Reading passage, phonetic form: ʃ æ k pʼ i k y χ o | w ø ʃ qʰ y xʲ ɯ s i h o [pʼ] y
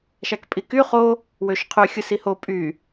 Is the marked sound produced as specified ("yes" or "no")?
yes